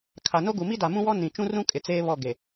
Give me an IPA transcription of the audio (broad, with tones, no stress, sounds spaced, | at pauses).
kʰ a˨ n o˦ ɡ u˨ m i˦ d a˨ m ũ˦ w ɔ˦ n ĩ˨ t͡ʃ ũ˦ r ũ˦ kʼ ɪ˨ t͡s eː˦ β ɔ˦˨ ɡ e˨